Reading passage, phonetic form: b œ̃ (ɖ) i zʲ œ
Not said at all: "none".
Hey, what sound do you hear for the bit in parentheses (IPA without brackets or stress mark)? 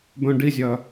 ɖ